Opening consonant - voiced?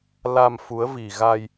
yes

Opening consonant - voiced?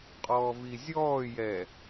no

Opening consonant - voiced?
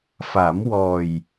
no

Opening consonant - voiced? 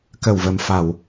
no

